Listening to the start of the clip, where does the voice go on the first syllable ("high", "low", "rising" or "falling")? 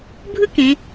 high